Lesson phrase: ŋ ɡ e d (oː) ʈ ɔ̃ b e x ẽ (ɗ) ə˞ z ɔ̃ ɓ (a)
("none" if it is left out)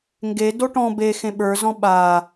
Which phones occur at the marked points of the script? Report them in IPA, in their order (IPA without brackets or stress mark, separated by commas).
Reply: o, ɓ, aː